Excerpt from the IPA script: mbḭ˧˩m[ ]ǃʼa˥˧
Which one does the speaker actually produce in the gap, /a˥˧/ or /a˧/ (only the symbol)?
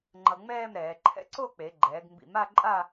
a˥˧